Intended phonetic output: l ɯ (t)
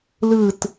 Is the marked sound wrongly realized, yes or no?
no